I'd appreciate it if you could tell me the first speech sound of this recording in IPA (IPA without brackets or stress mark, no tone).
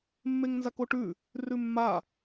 mː